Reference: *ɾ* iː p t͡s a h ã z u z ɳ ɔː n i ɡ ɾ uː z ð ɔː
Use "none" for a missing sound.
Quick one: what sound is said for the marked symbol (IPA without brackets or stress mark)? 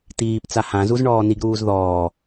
t